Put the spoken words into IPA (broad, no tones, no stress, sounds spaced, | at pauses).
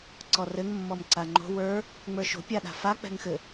ǀ ɔ r ɘ ŋ mː ɔ m ǀ a ŋ͡ǃ o̤ w ə˞ | ŋ͡m ə˞ ʃ o̤ pʲ a ɗ a̤ f a k͡p ɛ̤ ŋ x ɘ